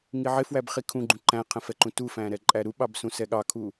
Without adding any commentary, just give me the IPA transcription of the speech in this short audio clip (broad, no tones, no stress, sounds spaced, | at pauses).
ŋ i ʕ ɪ f w æ b χ i kʰ ũ ɡ͡ǃ ũ ǃ æ̃ qʰ ə̃ f ɛ ǃ ũ t u f æ̃ ɾ ɛ ǃʼ æ ɾ u ɓ ɑ b s ũ s ɛ ɠ ɑ kʰ u